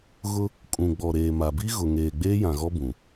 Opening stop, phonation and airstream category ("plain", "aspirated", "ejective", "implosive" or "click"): ejective